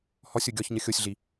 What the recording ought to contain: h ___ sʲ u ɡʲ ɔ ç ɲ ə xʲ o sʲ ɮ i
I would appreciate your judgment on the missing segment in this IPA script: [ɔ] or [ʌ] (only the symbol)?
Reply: ɔ